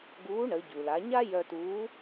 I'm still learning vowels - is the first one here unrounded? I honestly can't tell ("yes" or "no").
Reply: no